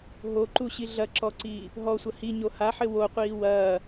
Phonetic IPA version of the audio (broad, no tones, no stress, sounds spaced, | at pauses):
ɦ o ǃ u ɕ i ɮ ɐ ǁ ɔ ǀ iː | ɦ ɔ sʷ ɐ h i ɲ o h a ħ ɘ w o qʷ iː w ɐː